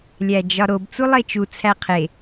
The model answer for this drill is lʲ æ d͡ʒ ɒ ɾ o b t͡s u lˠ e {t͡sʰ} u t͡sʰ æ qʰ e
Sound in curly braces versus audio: incorrect: t͡ʃ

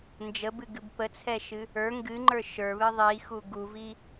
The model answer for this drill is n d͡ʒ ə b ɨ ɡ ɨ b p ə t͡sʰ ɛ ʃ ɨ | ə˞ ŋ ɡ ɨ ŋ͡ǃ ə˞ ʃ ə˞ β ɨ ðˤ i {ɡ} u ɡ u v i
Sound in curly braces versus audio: incorrect: x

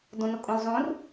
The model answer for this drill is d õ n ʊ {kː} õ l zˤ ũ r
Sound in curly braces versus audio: incorrect: kʼ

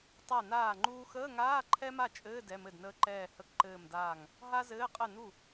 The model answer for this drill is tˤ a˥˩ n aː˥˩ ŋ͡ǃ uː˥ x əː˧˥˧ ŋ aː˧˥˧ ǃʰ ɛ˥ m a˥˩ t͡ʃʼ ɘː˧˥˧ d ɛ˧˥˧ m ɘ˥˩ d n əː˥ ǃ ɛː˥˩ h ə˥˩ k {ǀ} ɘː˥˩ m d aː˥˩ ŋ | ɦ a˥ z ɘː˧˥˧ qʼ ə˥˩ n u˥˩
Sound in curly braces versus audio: incorrect: ǃ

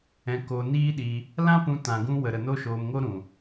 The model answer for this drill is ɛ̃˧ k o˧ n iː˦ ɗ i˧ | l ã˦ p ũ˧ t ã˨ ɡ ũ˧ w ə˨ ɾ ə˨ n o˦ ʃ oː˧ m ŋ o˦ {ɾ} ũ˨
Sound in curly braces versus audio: correct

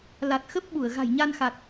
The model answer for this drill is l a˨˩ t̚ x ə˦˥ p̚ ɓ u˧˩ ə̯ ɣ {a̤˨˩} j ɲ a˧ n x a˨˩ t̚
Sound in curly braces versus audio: correct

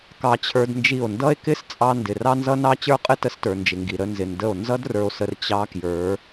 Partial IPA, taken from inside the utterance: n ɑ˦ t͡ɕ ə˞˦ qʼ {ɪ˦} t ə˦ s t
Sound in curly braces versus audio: correct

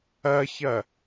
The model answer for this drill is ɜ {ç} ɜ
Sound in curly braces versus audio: correct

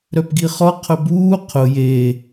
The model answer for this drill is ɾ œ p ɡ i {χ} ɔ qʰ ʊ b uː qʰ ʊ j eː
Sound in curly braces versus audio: correct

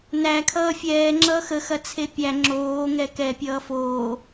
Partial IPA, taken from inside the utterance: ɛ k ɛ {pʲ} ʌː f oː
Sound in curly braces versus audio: correct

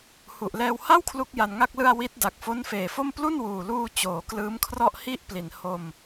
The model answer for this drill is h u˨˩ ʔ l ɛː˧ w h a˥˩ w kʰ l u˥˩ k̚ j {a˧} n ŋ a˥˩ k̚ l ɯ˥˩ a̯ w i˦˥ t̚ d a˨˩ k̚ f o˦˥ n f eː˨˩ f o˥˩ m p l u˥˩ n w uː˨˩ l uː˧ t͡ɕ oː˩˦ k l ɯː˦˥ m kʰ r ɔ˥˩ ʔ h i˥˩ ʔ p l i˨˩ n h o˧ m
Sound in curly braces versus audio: correct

